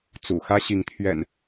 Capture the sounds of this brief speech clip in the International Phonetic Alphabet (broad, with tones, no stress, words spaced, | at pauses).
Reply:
t͡sṵ˨˩xä˦ɕi˨˦ŋt̪ʰɥɛ̰˨˩n